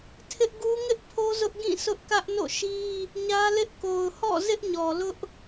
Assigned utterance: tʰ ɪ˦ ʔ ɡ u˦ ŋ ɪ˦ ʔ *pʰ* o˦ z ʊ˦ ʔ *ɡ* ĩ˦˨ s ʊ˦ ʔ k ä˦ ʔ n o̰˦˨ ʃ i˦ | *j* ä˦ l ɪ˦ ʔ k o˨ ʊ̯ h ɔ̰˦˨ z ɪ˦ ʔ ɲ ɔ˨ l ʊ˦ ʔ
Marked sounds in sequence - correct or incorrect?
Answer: correct, correct, incorrect: ɲ

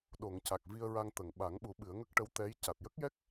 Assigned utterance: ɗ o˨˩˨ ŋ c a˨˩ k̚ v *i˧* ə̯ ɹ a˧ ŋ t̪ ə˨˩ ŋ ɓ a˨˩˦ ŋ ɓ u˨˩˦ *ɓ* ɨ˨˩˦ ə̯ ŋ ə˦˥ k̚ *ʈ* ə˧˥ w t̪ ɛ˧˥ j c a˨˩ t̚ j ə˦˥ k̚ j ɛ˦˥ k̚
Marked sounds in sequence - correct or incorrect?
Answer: correct, correct, correct

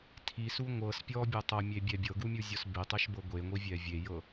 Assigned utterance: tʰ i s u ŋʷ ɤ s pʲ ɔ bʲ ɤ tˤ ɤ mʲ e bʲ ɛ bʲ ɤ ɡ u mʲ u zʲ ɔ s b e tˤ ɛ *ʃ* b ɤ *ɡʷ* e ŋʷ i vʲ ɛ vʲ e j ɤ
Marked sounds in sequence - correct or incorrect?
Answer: correct, correct

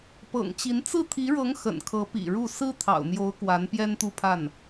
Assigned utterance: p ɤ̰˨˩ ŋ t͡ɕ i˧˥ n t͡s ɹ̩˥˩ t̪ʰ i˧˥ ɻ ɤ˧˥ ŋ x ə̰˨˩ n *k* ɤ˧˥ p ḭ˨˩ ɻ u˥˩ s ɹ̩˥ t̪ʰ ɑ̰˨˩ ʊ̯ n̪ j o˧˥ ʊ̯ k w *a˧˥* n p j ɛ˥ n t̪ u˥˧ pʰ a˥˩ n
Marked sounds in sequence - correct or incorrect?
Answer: incorrect: kʰ, correct

